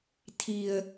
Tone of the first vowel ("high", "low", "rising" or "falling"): low